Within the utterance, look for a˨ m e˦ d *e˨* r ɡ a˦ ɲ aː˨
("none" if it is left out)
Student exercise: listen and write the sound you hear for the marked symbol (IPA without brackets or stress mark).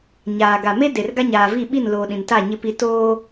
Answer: e˨